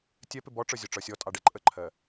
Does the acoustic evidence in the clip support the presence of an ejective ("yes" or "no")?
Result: yes